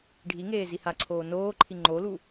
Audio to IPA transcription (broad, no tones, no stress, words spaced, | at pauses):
ɖʱiŋeː zihaǀʰoː noːǃʰi ŋ͡ǃolu